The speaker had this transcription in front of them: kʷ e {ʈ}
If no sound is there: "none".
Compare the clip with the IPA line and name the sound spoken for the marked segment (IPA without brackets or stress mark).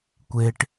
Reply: ʈ